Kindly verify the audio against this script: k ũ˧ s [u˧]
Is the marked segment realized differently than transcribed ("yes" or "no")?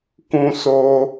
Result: yes